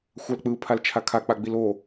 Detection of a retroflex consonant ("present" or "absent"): absent